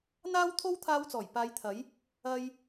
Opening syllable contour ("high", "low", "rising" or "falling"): high